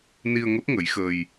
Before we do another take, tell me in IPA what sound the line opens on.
n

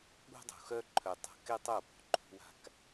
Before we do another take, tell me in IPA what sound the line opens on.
ɠ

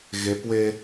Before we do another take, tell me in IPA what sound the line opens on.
ɣ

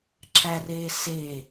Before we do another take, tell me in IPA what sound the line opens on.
ǁ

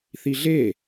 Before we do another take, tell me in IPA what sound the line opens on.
θ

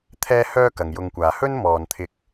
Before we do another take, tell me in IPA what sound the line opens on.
t̪ʰ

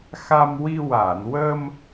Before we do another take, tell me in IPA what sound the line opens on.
x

